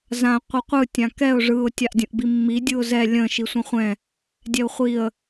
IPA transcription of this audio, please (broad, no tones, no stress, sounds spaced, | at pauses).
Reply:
z ã qʷ ɯ qʷ ɯ tʲ ã k ɛ ʊ̯ ʐ ɯ ʊ̯ tʲ a ʔ dʲ ə̃ ʔ b i mː i dʲ ɯ ʊ̯ z ɛ lʲ ə̃ ʃ i sʷ ə̃ χʷ ɛ̃ | dʲ ɛ ʊ̯ χʷ i ə̯